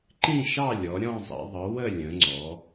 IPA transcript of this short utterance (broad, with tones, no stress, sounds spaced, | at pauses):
ǃ ĩ˥˧ ʃ ɑ˥˧ lʲ ɔ˩˧ ɾʲ ɔ̃˥˧ zˤ ḭ˩˧ ðˤ ə˩˧ w ə˥˧ lʲ ə̃˩˧ ŋ͡ǀ ɔ˩˧